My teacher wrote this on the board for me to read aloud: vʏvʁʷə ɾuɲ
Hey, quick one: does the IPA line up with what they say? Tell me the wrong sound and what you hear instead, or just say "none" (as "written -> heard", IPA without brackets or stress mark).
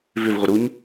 none